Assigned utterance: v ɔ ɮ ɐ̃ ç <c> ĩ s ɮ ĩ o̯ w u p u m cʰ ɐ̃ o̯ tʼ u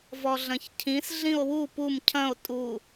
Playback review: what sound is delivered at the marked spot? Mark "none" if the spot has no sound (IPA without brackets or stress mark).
cʰ